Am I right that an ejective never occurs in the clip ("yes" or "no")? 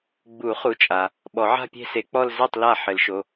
no